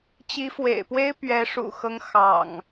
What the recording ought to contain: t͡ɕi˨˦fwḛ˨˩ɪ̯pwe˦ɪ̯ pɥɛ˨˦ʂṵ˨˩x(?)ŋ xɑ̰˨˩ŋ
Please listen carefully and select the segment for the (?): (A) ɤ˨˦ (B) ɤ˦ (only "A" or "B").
B